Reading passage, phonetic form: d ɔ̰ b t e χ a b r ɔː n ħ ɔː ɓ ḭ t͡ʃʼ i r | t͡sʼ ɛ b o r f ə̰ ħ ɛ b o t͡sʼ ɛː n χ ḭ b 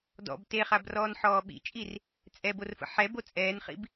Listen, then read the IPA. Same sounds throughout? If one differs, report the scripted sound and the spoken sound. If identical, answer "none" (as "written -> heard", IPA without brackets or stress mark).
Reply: none